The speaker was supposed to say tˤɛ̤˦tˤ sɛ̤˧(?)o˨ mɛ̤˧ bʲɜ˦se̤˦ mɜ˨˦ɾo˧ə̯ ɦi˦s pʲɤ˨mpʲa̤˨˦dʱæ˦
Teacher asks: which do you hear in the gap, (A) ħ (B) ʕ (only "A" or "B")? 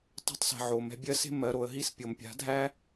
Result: B